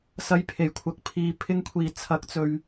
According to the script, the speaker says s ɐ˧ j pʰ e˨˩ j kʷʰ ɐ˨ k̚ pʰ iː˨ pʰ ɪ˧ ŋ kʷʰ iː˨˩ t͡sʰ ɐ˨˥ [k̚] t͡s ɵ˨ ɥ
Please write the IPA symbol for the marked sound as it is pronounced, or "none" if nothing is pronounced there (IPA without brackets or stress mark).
k̚